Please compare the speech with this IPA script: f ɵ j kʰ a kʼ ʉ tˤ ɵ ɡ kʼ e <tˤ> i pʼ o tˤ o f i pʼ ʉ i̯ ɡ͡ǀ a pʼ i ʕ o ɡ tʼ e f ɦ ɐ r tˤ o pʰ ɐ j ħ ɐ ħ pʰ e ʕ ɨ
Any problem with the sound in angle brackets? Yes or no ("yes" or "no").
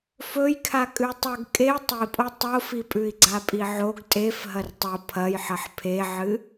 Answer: no